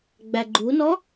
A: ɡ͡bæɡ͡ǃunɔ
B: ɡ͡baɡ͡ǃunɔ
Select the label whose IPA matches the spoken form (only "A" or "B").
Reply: A